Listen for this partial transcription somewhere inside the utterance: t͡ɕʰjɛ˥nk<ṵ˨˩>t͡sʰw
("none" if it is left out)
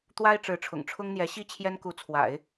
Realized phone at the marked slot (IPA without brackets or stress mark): u˧˥